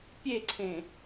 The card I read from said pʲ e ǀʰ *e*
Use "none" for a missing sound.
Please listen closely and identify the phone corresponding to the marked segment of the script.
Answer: ẽ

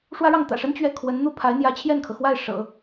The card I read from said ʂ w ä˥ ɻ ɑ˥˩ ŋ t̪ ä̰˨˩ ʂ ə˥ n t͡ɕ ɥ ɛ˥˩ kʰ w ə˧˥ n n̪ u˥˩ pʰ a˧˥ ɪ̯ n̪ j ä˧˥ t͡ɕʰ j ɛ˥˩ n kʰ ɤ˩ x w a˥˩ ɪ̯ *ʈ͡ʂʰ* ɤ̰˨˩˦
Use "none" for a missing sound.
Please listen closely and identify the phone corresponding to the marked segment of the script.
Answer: ʂ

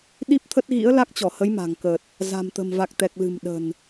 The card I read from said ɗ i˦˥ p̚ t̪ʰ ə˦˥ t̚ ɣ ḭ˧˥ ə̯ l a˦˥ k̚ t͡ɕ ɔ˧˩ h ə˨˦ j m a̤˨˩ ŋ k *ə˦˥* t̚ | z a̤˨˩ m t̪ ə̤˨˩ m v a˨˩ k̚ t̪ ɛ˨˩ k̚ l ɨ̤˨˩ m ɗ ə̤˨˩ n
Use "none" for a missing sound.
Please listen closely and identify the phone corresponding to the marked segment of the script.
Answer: ə˨˩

